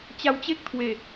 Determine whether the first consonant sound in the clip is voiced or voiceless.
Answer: voiceless